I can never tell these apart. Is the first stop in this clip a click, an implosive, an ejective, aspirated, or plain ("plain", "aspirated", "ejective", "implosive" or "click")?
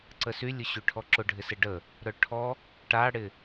click